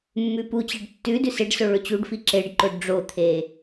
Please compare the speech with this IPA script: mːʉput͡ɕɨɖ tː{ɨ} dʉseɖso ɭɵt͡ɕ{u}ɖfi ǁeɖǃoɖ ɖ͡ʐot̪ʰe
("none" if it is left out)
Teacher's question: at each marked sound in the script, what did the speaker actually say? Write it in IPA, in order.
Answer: ʉ, u

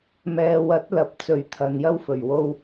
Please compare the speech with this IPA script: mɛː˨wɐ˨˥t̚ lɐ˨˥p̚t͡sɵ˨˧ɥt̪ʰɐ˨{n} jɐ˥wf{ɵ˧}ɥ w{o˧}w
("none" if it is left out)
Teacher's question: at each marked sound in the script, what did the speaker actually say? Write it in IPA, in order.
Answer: n, ɵ˨˩, o˧

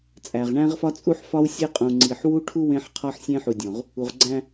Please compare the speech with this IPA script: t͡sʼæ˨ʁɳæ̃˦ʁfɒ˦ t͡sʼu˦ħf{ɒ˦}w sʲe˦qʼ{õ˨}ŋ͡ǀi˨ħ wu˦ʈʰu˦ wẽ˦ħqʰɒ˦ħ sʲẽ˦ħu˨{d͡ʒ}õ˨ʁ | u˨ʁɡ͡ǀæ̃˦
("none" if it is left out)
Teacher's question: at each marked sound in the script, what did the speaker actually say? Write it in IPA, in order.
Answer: ɒ˦, ũ˨, dʲ

